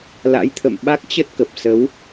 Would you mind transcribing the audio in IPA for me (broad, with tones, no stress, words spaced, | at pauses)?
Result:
la̰˧˥jt̪ʰə̰˧˨m ɓa˦˥k̚t͡ɕə˦˥t̚kə˨˩p̚ sə˨˦w